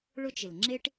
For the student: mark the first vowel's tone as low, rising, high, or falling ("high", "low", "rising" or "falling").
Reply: high